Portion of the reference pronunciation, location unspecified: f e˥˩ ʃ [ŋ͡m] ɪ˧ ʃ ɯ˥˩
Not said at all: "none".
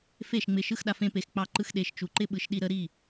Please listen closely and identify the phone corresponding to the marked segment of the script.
ŋ͡m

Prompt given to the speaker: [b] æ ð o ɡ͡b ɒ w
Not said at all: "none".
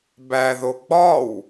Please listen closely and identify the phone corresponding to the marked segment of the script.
b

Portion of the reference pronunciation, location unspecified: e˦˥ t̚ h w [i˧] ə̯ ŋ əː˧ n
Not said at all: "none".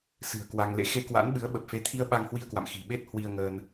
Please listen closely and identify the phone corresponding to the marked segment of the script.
i˧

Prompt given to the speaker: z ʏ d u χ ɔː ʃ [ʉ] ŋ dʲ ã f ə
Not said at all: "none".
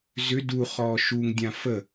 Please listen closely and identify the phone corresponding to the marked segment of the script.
u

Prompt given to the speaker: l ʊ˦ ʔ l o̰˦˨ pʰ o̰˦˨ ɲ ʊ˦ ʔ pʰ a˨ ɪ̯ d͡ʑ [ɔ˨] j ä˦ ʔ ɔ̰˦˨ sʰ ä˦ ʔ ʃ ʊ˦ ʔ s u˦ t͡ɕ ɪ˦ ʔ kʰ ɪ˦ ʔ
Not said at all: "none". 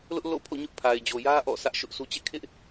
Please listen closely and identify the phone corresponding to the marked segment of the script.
o˨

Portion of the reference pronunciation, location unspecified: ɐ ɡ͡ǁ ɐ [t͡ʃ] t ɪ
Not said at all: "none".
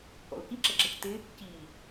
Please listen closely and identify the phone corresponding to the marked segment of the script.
c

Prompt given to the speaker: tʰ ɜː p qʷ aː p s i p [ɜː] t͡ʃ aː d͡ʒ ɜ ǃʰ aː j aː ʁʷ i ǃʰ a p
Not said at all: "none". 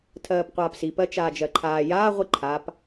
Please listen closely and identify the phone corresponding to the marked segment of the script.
ɜ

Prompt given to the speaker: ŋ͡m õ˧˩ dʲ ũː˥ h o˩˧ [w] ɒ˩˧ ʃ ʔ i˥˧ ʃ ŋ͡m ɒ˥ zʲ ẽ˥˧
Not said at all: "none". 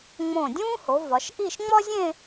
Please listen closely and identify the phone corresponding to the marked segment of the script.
v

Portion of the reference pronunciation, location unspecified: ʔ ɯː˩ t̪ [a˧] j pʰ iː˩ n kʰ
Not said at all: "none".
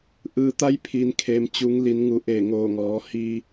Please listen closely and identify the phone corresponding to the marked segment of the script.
a˧˥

